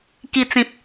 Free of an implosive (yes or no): yes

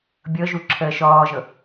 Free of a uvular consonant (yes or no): yes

